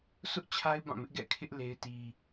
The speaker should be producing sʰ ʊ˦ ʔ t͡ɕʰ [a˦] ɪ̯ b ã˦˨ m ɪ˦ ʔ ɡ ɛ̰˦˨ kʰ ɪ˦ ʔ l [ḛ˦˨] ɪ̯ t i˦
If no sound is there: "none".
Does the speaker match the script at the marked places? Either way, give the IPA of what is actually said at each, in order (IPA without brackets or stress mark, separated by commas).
a˦, e˦